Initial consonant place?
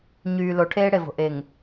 palatal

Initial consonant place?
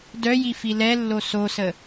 alveolar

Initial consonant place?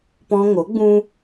labial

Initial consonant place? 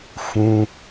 labial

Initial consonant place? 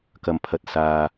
velar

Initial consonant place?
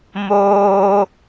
labial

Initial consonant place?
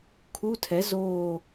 velar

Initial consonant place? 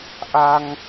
glottal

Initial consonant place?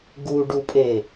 velar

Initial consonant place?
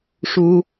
retroflex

